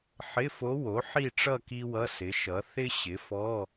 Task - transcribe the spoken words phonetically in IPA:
ħ ɪ˧˥˧ f o˧˥ w o˩˥ ħ i˥˧ ʈ͡ʂ ʌ˥˧ k i˥ w ʌ˧˥˧ s ɪ˩˥ ʃ ʌ˩˥ θ ɪ˥ ɕ ɪ˩˥ f ɔ˧˥˧

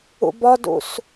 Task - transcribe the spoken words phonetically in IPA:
ṵ b ɒ d ṵ s

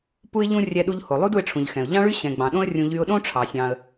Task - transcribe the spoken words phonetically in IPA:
p u˥ ɪ̯ ʎ ũ˥ rʲ ɛ˧ ɗ u˧ ʎ h o˩ lˠ u˥ d u˧ ɪ̯ ʈ͡ʂʰ ũ˩ ʎ x ɛ̃˩ ʊ̯ ʎ ɑ̃˥ ɭ y˥ ɕ ɛ̃˩ ɡ͡b ɑ̃˩ ɗ õ˥ ə̯ rʲ ũ˧ ʎ y˧ ʊ̯ ɗ õ˥ ʈ͡ʂʰ ɑ˩ sʲ ɑ̃˩ ə̯

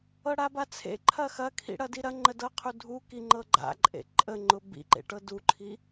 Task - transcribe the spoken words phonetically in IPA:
ɤ ɽ a b a t͡sʰ ḛ ǃʰ ɐ x ɐ kʰ ḭ ɽ ɐ d i ɾ ɐ ŋ͡ǃ ə d ɤ qʰ u dʱ u k i ŋ͡ǃ ɤ ɡ͡ǃ a̰ ǃʼ ḛ ǃʼ ə ŋ͡ǃ ʊ b ḭ ǃ ḛ ʈ ɤ d u ǃʰ i

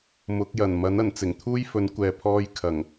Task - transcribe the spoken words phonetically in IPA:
m ʊ˨˥ k̚ j ɐ˨˩ n m ɐ˨˥ n ɐ˨˩ n t͡s ɪ˨˩ ŋ t̪ʰ uː˥ j f ɵ˨˥ n kʷ ɛː˨ pʰ ɔː˧ j kʰ ɐ˨˩ ŋ

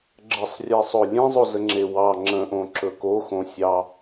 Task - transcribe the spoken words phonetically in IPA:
ɡ͡ǁ ə sˤ rʲ e sˤ o lʲ ẽ zˤ o z ə ŋ͡ǁ e w ɑ ŋ͡ǁ ə̃ ʔ õ ǁ ɵ k o x õ sʲ ɑ

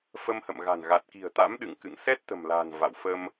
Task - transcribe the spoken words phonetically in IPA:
f ə˧ m h ə̰˧˨ m ɣ a̤˨˩ n ɣ a˨˩ t̚ k i̤˨˩ ə̯ t̪ a̰˧˥ m ɗ ɨ̰˧˨ ŋ k ɨ̰˧˨ ŋ s ɛ˦˥ t̚ t̪ ə̤˨˩ m l a̤˨˩ n v a̰˧˨ w f ə˧ m

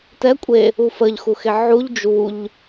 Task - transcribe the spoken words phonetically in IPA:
t ɛ kʷʼ e | u f ə ʎ x u x e ʕ u ʎ d͡ʒ u ʎ

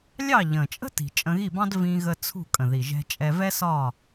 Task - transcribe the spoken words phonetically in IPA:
lʲ ɑ˥˨ ʎ ə̃˨˩ t͡ʃʼ ə̤˥ t i̤˨˩ t͡ʃʼ ə̃˧ ɣ i˥˨ b ɑ̃˥ d v ĩ˧ ɣ ə˧ t͡sʰ ṳ˥˨ kʼ ə̃˨˩ ð i˨˩ ʒ ɛ̤˧ t͡ʃʼ ɛ˧ v ɛ˥ s ɒ˥˨

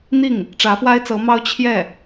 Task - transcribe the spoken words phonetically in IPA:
n̪ i˥˩ ŋ | ʈ͡ʂ ä˧˥ f w a˥ ɪ̯ t͡s ɤ˧˥ m ɑ˥ ʊ̯ t͡ɕʰ j ɛ˥˩

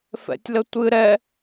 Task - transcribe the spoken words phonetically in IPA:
f ɛ̰ tʲ l ə tʷ ɨ ɾ ɛ

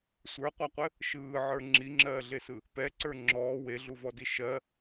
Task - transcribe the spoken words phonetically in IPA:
sʷ ə˞ qʷ a qʷ ɘ | ʃ ɯː ʕ ə˞ ŋ͡ǁ i ŋ͡ǁ ɜː ɮ e s ɯ | p ɛ ǀ ə˞ ŋ͡ǁ ɔː w e ɮ u v ɔ d i ʃ ɜ

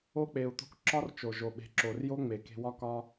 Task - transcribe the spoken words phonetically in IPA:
o˧ k͡p e˨ u̯ t̪ o̤˧ k ǁ ɒ˦ r t͡ʃ o˨ ʒ o˨ ɓ e̤˨˦ ǁ o˨ r j o˦ ŋ͡m e˨ k e̤˧ w ɒ˦ k ɒ˦

